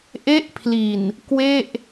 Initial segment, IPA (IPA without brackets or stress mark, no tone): ʔ